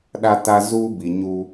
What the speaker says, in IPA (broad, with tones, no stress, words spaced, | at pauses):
ɗa˦ta˦ zuː˦bi˨ ɲu˦